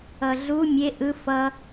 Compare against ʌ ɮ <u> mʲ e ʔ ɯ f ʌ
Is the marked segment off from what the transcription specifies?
no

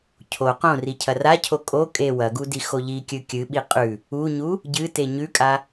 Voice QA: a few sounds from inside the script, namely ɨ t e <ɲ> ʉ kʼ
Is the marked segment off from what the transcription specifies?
no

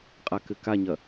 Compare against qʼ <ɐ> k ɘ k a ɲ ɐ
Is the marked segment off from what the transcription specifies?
yes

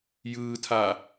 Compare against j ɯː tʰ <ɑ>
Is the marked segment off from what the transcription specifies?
yes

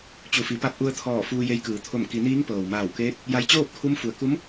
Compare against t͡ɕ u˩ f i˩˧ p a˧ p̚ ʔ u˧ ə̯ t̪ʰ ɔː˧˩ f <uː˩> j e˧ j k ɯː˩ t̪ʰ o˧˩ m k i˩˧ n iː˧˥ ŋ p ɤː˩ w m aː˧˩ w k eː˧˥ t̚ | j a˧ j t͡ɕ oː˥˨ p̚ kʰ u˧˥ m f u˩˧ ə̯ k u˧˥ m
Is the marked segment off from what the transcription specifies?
yes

